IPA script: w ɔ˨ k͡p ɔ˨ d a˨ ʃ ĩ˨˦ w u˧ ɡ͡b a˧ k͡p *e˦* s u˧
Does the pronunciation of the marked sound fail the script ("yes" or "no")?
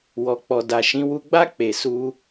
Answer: yes